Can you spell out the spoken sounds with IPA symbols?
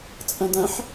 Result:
t͡sʼɐ̃dɐ̃ħ

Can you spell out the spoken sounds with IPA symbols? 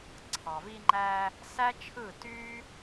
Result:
ǀʰɑ˩vi˧ŋ͡ǃæ˧ | sæ˥t͡ʃʰɯ˥˩ ty˥

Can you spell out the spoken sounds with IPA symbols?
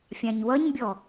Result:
fʲãɲwʌɲbʲɔ

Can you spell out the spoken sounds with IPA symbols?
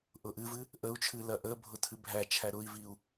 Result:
ʔʊʔɨvɨ | ʔəu̯t͡ʃʰɨ lɐʔəbʱʊ tʰɨbʱæt͡ʃʰæ ɾʊi̯viu̯

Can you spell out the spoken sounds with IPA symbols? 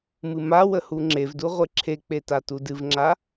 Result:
mɨmawə huŋ͡ǁevdu ʁʷeǁʰek͡pe tatudɨvŋ͡ǁa

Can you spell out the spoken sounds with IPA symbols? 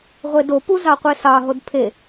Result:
ʁʷedo puzɑqʷesɑ ɦodpʰe

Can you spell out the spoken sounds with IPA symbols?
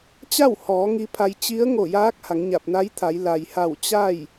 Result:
t͡ɕa˥˨whɔː˩˧ ŋi˧˥pʰa˧j t͡ɕi˧˥ə̯ŋo˧˩jaː˧˥k̚ ha˩˧ŋɲa˧˩p̚na˧˥jt̪ʰa˩˧j la˩jha˧˩w t͡ɕa˥˨j

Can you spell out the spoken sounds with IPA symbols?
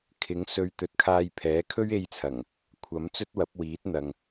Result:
kʰɪ˨˥ŋsɵ˧ɥ t̪ɵ˨t̚kʰaː˧jpʰɛː˨˥ kʰɵ˥ɥe˧jt͡sʰɐ˨˩ŋ | kʷʰɐ˨˥m t͡sɵ˥t̚wɐ˨˥p̚wiː˨˥t̚n̪ɐ˨ŋ

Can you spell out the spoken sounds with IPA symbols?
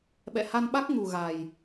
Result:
ɓɛ̰˧˨ha˧nɓa˦˥k̚ ŋu˨˩ ɣa˨˩j

